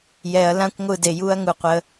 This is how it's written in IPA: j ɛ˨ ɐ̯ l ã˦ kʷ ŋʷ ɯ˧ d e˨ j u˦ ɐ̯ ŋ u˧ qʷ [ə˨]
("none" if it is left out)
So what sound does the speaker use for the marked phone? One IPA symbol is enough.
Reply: ə˧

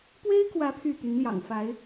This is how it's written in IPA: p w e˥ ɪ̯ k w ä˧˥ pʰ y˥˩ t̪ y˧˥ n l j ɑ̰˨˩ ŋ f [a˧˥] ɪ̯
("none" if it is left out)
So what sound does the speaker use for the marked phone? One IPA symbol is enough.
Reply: a˧˥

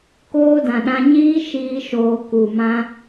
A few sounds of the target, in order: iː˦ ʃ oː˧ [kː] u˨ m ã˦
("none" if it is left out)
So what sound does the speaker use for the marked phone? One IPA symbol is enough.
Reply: k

